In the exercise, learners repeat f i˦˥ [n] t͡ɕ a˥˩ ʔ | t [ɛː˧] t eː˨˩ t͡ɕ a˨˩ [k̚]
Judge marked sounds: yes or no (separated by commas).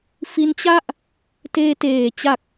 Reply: yes, no, yes